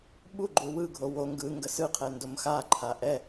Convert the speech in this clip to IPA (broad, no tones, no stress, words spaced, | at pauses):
ɓu ɡ͡ǃuwɯɡʱo wo ŋɡɯ ŋɡəsɯqʰɛ ndomxaǃʰa ʔɛ